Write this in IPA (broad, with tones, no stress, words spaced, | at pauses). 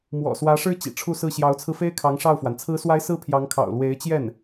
mwɔ̰˨˩swä˧˥ʂɻ̩˥ t͡ɕḭ˨˩ʈ͡ʂʰu˥˧sɹ̩˥˩ ɕjɑ˧˥ʊ̯t͡sʰɹ̩˧fe˥ɪ̯kʰɑ˧˥ŋ ʂɑ˥˩ʊ̯fwa˩n t͡sʰɹ̩˧˥swa˧˥ɪ̯ sɹ̩˥pʰjɑ˧˥ŋkʰɑ̰˨˩ʊ̯ lwe˧˥ɪ̯t͡ɕjɛ˥˩n